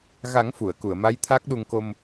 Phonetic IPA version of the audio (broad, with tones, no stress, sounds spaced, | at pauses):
ɣ a˨˩˦ ŋ f u˨˩˨ ə̯ k u˨˩˨ ə̯ m a˧˥ j t̪ʰ a˦˥ k̚ ɗ u˧ ŋ k o˧ m